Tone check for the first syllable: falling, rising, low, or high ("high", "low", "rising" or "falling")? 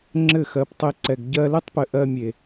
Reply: falling